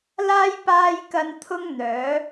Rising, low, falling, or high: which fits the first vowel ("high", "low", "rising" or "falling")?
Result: high